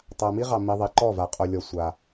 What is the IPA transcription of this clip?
tˤ a˨ m i˦ ʁ ɑ˨ m i˨ ðˤ i˨ ǃ ɔ˦˨ v a˨ qʼ o˨ lʲ ɔ˨ sʷ a˦

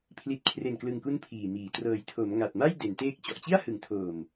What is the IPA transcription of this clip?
pʰ l i˨˩ t̚ kʰ r e˨˩ n k l ɯ˨˩ ŋ k u˧ n pʰ iː˨˩ m iː˩˦ t r ɤː˩˦ j tʰ o˩˦ m ŋ a˨˩ t̚ m a˥˩ j d e˩˦ n t eː˥˩ k̚ t͡ɕ ɔ˨˩ ʔ t͡ɕ i˥˩ a̯ h ɯ˩˦ ŋ tʰ oː˨˩ m

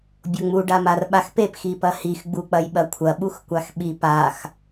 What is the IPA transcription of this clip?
bʲ o ŋ͡m u ɖ a m a r ɓ a x p e p x i p ɐ h i x ɡ͡b u k͡p ɐ j ɓ ɐ kʷʰ ɐ ɓ u x kʷ a x ɓ i p a x

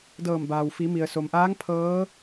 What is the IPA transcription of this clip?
d ɤː˧˩ m b aː˩ w f i˩˧ m i˩ ə̯ s o˩ m ʔ aː˧˥ ŋ pʰ ɤː˧˥

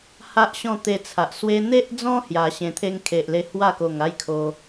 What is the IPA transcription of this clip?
h a˦ ʔ ɕ ɔ̃˥˧ t̪ e˧ t͡sʰ a˨ ʔ s w e˧ n̪ e˦ ʔ d͡z ɔ̃˦ h j a˧ ɕ ẽ˧ t̪ʰ e˦ ŋ kʰ e˨ ʔ l e˧ h w a˥˧ k o˨˩ ŋ a˥˧ j kʰ o˧

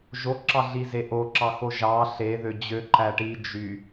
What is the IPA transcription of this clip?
ʒ o ǁ ɑ ɮ i z e ʔ o ǁ ɑ x o ʒ ɑ ɬ e ð ø d͡ʑ ø ǃ æ ʈ i d͡ʒ y

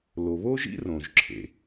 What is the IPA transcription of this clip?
l o˩ β o˥ ʒ ḭ˥ r õ˩ ʒ ǁʰ ḛ˩

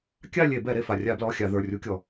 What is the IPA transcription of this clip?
kʲ a˥˧ lʲ e˧˩˧ b ɛ˧˩˧ ɾ e˩ f a˩ rʲ a˧˩˧ b l ɔ˩˧˩ xʲ a˧˩˧ ð ə˞˩˧˩ rʲ u˧˥ kʲ ɔ˩

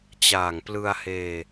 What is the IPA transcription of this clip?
t͡ɕ aː˨˩ ŋ p l ɯ˧ a̯ h eː˧

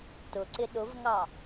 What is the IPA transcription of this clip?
t ʊ ǀ ɪ ɗ ʊ v ŋ ɑ

